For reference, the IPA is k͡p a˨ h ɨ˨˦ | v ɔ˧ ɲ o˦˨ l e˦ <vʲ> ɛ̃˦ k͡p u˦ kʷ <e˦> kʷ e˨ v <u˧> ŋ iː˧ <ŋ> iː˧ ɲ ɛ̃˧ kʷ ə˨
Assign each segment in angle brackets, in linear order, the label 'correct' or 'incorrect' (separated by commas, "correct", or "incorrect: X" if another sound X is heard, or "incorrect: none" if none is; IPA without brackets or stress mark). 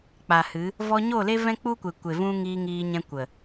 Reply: incorrect: v, incorrect: e˨, incorrect: ũ˧, correct